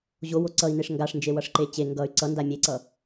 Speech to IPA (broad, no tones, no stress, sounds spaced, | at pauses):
ʑ o w o ǀ ʌ i̯ n e ʂ ŋ ɡ a ʂ n d͡ʒ e w ʌ ʂ ǃ e t͡ɕ e ŋ ɡ ʌ y̯ ǀ ʌ n d a mʲ e ǀ ʌ